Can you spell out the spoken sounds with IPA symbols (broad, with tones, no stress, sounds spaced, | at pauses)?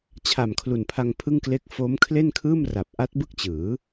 t͡ɕʰ a˨˩ m kʰ l u˨˩ n pʰ a˧ ŋ pʰ ɯ˥˩ ŋ k l e˥˩ k̚ f o˦˥ m kʰ l e˥˩ n kʰ ɯː˥˩ m r a˨˩ p̚ ʔ a˦˥ t̚ b ɯ˥˩ k̚ t͡ɕ ɯː˩˦